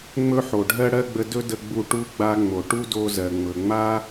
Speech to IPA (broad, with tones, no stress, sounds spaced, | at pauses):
ŋ͡m ɵ˦ ħ o˨ ɖʱ ɜ˦ ɽ ɜ˦ ɡ͡b ə˧ d ɵ˦ d ə˧ ɡ͡b u˧ ʈ u˧ ɡ͡b a˧ ŋ͡m o˨ ʈ u˦ d o˧ z ɜ˨ ŋ͡m ɵ˨ ŋ͡m a˦